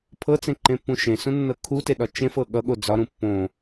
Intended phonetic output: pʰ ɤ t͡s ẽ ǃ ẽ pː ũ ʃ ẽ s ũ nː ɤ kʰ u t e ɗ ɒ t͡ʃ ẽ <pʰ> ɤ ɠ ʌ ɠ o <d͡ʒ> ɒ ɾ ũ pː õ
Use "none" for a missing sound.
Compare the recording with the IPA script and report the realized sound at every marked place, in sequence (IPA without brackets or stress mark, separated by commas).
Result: f, d͡z